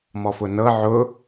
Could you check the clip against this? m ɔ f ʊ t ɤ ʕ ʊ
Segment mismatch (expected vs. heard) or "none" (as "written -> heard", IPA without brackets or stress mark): t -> n